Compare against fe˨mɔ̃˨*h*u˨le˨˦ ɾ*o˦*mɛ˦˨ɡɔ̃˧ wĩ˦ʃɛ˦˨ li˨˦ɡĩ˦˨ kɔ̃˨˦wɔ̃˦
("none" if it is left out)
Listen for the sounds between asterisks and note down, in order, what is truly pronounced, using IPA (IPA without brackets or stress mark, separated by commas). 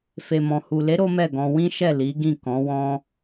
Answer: h, o˦